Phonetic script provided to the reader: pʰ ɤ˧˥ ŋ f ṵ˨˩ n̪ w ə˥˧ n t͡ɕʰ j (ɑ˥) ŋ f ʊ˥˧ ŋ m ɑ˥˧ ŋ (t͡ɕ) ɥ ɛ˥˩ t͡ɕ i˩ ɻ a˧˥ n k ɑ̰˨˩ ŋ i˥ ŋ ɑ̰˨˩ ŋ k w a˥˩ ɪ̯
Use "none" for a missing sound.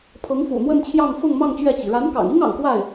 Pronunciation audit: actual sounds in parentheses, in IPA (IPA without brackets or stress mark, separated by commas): ɑ˥˧, t͡ɕ